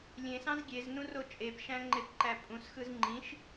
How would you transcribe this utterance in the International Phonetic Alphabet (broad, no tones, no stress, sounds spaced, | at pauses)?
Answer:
lʲ ẽ s ɑ̃ z ɡʲ e z n ũ r o t͡ʃʼ e p ʃ æ̃ ŋ͡ǃ e p ǃ æ pʼ ũ s x ɯ z ŋ͡ǃ ĩ ʃ